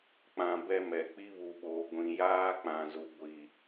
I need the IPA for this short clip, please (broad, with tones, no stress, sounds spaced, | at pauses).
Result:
k͡p ã˨ b ɛ˦ m ɛ˨ k͡p i˦ β u˨ ɓ oː˨ ɡʷ ĩ˨ j aː˦ k͡p ã˨ z u˨ ɡʷ i˨